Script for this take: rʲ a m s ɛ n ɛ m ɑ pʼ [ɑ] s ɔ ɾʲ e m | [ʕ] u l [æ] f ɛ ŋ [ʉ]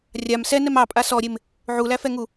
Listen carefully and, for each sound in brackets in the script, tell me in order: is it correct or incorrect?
incorrect: a, correct, correct, incorrect: u

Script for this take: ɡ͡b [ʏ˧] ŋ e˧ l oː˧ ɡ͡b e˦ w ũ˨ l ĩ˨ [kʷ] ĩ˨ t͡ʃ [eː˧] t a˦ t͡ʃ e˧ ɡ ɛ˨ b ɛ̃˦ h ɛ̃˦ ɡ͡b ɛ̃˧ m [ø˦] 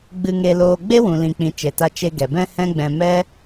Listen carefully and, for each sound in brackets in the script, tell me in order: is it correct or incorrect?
incorrect: ɨ˧, incorrect: k͡p, incorrect: e˧, incorrect: ɛ˦

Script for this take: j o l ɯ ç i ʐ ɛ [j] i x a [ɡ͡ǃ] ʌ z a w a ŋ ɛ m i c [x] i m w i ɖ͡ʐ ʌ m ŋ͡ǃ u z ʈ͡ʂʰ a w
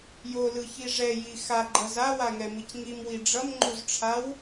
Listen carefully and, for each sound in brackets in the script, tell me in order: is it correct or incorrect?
correct, correct, incorrect: ŋ

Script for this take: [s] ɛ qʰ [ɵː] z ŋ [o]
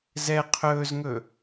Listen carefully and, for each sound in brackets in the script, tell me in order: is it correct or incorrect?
incorrect: z, correct, incorrect: ɵ

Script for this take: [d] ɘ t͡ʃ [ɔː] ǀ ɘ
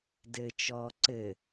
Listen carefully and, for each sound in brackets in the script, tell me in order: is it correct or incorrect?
correct, correct

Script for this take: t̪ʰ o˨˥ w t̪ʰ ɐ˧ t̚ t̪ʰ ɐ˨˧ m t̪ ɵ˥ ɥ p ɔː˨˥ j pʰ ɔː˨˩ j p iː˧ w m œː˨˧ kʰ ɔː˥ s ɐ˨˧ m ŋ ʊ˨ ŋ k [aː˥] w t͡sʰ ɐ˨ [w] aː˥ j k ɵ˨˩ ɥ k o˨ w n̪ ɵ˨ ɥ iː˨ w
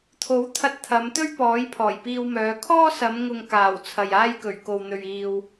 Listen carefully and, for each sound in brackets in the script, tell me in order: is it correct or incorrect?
incorrect: aː˨˩, incorrect: j

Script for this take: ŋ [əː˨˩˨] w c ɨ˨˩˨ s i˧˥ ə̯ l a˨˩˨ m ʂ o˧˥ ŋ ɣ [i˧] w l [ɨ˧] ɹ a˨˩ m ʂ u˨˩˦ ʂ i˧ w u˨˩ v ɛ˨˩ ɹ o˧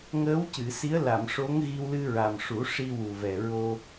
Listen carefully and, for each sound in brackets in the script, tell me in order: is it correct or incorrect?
incorrect: əː˧˥, correct, correct

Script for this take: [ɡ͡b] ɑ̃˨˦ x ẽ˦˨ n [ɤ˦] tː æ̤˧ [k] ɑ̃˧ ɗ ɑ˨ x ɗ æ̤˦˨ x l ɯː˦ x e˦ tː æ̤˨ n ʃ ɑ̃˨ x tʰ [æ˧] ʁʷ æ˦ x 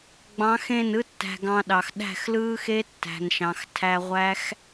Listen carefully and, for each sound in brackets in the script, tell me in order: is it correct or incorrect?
correct, incorrect: ɯ˦, incorrect: ɡ, correct

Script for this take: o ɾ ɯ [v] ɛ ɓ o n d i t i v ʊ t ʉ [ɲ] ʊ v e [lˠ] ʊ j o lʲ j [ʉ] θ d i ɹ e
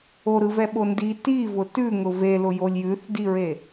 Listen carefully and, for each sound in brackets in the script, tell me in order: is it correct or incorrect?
correct, incorrect: ŋ, incorrect: l, correct

